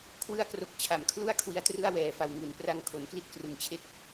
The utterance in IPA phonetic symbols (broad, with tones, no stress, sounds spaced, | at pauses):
kʰ w ɯ˧ a̯ k r o˨˩ k̚ t͡ɕʰ a˩˦ m kʰ l u˥˩ a̯ kʰ w i˦˥ a̯ t r ɯ˥˩ a̯ w ɛː˨˩ f a˨˩ w ŋ u˩˦ n p r a˧ ŋ kʰ o˩˦ n k l i˥˩ t̚ k r ɯ˨˩ ŋ t͡ɕʰ e˥˩ k̚